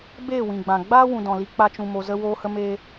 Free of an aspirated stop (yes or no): yes